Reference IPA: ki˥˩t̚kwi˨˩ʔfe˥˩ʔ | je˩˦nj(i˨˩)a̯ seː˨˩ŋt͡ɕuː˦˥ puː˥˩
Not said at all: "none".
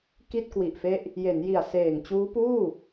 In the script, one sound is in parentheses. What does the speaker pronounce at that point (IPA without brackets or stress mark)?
i˨˩